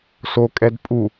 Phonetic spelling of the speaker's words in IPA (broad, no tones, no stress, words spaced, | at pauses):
so kʼɛdpʼu